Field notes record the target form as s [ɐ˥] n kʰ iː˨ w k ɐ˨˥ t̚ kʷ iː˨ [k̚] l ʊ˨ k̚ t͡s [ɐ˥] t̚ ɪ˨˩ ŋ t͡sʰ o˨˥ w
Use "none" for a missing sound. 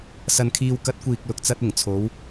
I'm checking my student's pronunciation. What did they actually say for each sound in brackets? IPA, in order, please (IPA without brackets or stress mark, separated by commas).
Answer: ɐ˨, k̚, ɐ˧